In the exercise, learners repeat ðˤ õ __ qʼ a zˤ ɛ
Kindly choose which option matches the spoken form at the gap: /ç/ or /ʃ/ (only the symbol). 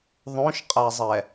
ʃ